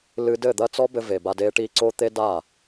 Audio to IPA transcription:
l ɨ˧ d ɘ˦˨ d̪ ɐ˦ t͡s ɔ˦ b ɘ˧ v e˨ b a˧ d e˦ ʈ i˦ ǀ o˦ t̪ e˦ d a˦˨

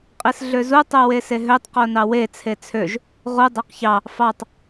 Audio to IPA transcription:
qʼ i s ɮ ø z u tˤ o w e s e ɦ ø tˤ q o n ɑ w e t͡sʰ e t͡sʰ ø ʒ | ʁ u dˤ æ q ç ɑ | f ɑ tˤ

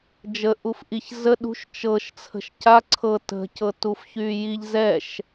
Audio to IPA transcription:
d͡ʒ ə ʔ u f ʔ i ç z ə ɗ ṳ ʃ t͡ʃ ɤ ʃ t͡sʰ ə̤ ʃ c a ǀʰ ɤ t ə̤ c ɤ t u f ç y j i ʎ z ɛ ʃ

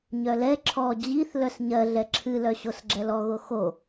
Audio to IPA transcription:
ɲ œ l ɛ ǁʰ ɔ d͡ʑ i θ l œ s ɲ ɜ ɮ ɛ ǁʰ ɨ l œ ɕ o s ɡ͡ǁ ɛ l ɔ ɣ o x o

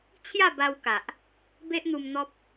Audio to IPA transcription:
t͡ɕʰ j a˥˧ b a˧ w k a˨ ʔ | b e˦ ʔ n̪ u˧ m n̪ ɔ˦ p̚

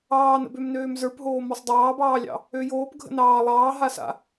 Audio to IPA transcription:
ɑː n ə̰ b ø m n øː m z ə˞ p ɦ oː m ɔ sˤ dˤ ɑː b ɑː lʲ ɑ̰ | ø j oː p ɡʱ ə̰ n ɑː lˠ ɑː ɦ a s a̰

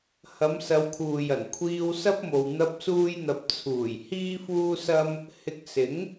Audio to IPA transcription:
h ɐ˨˧ m s ɐ˨˧ w kʰ uː˨ j ɐ˨˩ n kʷʰ iː˧ w s ɐ˥ p̚ m o˨ w n̪ ɐ˥ p̚ s uː˥ j n̪ ɐ˧ p̚ t͡sʰ uː˨˩ j h iː˥ f uː˥ s ɐ˥ m | h ɪ˧ k̚ s ɪ˨˥ ŋ

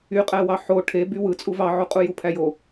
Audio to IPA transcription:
y qʼ æ w ɑ ħ o ʈʰ e b y w ɯ t͡sʼ u v ɑ ʕ u qʼ u j u pʰ æ j o

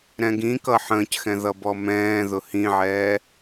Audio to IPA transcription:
ɾ ɛ̃ ɡ ĩ k ʌ ħ ə̃ː c x ɛ̃ ð ʌ b ɔ m ɛ̃ː ð ʊ h ĩ ʕ ɛː

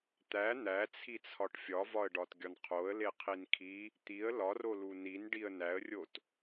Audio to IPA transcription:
t̪ æ n̪ æ t͡sʰ i t͡sʰ ɒ ʈ fʲ ɒ v ɒ ə̯ ɖ ɒ t ɡʲ ɒ n qʰ o ə̯ l e qʰ i n kʰ i | t̪ i ə̯ l ɒ r o l u n i n ɖ i ə̯ n æ ə̯ rʲ o t

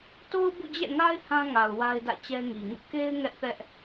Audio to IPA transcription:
t o˦ ʊ̯ b ṵ˦˨ d͡ʑ ɛ̰˦˨ ŋ a˦ ɪ̯ h ã˦ ŋ a˨ ʊ̯ w a˦ ɪ̯ d ä̰˦˨ t͡ɕ ɛ˦ ŋ i˨ ŋ ṵ˦˨ k e˦ ɪ̯ ŋ ɛ˦ ʔ θ ɛ˦ ʔ

